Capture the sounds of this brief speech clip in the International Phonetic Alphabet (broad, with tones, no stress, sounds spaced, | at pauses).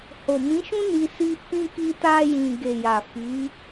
h o˨ m ĩ˨˦ ʃ ũ˦ n i˧ s i˧ f ĩ˧ k i˧ t a˧ j ĩ˨ ɡ e˨ j a˨ f i˨˦